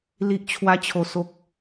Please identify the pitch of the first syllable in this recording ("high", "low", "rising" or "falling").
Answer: low